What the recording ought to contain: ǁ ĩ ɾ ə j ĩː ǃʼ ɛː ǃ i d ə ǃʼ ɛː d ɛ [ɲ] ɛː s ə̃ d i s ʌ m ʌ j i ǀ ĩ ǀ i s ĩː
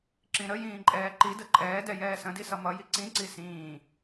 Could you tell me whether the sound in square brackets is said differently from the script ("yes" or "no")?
yes